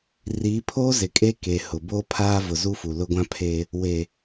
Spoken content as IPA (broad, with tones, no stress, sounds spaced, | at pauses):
r iː˨˦ pʰ oː˦ z ɪ˨ kʼ e˦ k e˨ h ʊ˨ b oː˦ pʰ aː˦ v ʊ˨ z u˦ f u˨ l ʊ˦ ɡʷ ã˦ pʰ e˦ | w e˨